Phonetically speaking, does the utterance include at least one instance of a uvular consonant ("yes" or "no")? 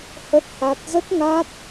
no